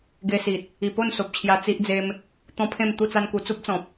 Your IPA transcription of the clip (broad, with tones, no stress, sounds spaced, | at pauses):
ɡ e˧ s i˨ t̚ | i˨˩ p o˥˧ n s o˨ p̚ t͡ɕʰ j a˧ t͡s i˦ ʔ d͡z e˦ m | t̪ ɔ̃˦ pʰ ẽ˥˧ m t̪ u˥˧ t͡s a˦ n k u˧ t͡s u˦ p̚ t͡s ɔ̃˨ p̚